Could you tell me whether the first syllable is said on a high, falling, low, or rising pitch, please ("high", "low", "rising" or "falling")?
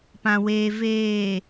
low